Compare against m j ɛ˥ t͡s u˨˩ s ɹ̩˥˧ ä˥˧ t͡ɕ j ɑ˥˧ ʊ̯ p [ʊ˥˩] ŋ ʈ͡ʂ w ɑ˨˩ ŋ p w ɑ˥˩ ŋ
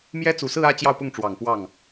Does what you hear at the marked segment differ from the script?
no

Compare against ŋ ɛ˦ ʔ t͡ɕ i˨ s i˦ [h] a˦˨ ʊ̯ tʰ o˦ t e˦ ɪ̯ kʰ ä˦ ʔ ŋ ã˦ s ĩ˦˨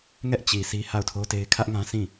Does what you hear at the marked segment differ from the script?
no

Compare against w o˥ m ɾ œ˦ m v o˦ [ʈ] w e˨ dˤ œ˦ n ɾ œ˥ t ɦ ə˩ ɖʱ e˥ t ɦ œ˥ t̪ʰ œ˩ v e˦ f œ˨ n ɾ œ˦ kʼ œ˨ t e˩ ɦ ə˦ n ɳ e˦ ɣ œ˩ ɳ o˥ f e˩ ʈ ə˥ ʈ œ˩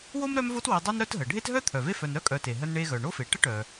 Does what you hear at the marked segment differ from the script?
yes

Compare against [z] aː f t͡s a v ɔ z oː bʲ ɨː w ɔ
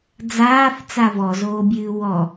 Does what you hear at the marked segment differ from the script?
yes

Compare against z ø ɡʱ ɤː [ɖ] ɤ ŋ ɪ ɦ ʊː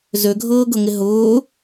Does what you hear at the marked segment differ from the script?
yes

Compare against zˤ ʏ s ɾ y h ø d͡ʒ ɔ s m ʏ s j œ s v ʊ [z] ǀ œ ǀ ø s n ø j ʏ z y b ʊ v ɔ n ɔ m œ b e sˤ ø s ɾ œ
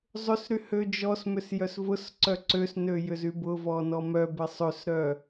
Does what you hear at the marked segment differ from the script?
yes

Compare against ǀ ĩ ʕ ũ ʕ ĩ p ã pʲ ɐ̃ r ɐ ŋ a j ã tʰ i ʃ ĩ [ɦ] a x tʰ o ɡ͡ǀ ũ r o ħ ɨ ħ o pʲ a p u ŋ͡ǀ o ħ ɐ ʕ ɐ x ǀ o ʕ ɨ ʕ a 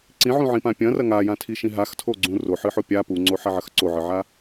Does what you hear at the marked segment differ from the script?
no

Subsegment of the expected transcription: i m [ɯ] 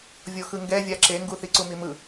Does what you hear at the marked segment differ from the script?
no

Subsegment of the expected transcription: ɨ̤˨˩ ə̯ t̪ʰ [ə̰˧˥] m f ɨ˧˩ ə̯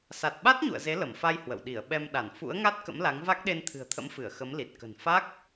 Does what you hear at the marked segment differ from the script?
no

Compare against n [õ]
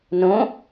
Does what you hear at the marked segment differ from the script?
no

